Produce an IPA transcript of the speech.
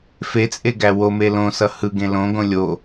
fet͡sʼeɡæ wome lõsʌ hɯɡẽ lõɡõ lʲo

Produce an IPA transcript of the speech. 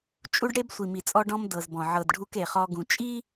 t͡ʃʼu˦ɖɽe˦b sʷi˨mi˨t͡sʼɔ˦ ɖɔ̃˦m dɤ˨zbɔ̃˨ ʕɤ˨d ɖʱu˦k e˨χɔ˦ɡũ˨ t͡ʃʼi˦

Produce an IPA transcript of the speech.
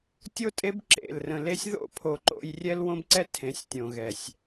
tʲo˦tʼe˦b ǁḛ˦˨lrə̃˧ le˧sʲðo̰˦˨pʰo˨ ǃo̰˧j rʲɛ˦lwõ˦bǀɛ˦ tʰẽ˨˦sʲtʲõ˨ ɣɛ˨sʲ

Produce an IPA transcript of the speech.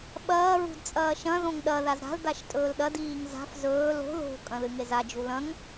ɓɐː ɹṳdt͡sʼɐːʃɐ̃ ðõŋɗɐ ðazɾa̤l daʃtʼɵːlɗɐd iːŋza̤f zɵːl o̤ ðo̤ kʼɐ̃ðɨŋeza d͡ʒulɐ̃ŋ

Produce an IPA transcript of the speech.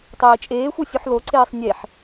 tˤiːt͡ʃʼeːxʷe sʲuħloǀeːsˤ nʲeħ

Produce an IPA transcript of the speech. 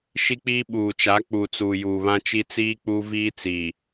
ʃi˦k͡piː˦ ɓuː˨t͡ʃa˨˦ k͡pu˨ t͡suː˨juː˨βã˦t͡ʃi˦ t͡siː˦k͡pu˦viː˦t͡siː˨

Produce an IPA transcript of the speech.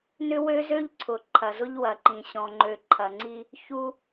nʏ˦wø˦zø˦ʎǀʰʊ˨ ǃʰɐ˨zʊ˦ʎwɐ˨ǃĩ˨ ɕɔ̃˨ŋ͡ǃø˨ ǃʰɐ˨ŋ͡ǀi˦ | çu˦

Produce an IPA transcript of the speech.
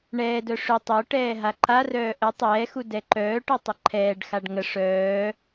ɳɛːdœ ʂʏ tˤoʈɛː ɦaǃarœː ʔə tˤɛːxu dɛǃœːʈœ tˤəǃʰɛːɖxaɖ ŋə ʂœː

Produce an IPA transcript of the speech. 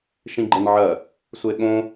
ʃĩɡ͡ǃɘnʕɜ | sʷeɠõ

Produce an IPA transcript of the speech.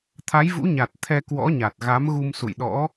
t̪ʰa˨˦jvṵ˧˥ɲa˨˩t̚ t̪ʰɛ˧kwɔ̰˧˥ɲa˨˩t̚ ɣa˨˦mɣu˧m sṵ˧˨jɗɔ̰˧˥

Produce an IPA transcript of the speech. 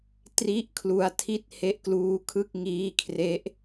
tri˥˩ʔkʰlu˧a̯tʰi˥˩t̚ he˦˥ʔkluː˦˥ kʰɯ˥˩k̚ŋiː˦˥kʰre˦˥ʔ

